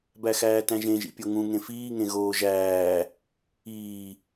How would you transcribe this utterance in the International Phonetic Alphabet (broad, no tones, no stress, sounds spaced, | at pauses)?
b æ x æː t æ̃ ʒ ẽ ʒ ḭ pʲ o ŋ ũ ŋ ẽ f iː ŋ ẽ ɣ oː ʒ æː | iː